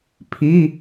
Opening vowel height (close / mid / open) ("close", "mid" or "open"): close